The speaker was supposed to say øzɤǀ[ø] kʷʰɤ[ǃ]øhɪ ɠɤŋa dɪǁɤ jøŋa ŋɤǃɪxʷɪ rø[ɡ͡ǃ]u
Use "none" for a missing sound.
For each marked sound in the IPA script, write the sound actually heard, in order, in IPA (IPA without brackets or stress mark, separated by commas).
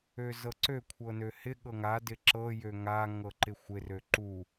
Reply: ø, n, ǃ